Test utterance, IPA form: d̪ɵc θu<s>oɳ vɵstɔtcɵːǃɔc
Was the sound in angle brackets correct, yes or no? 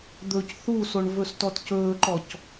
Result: yes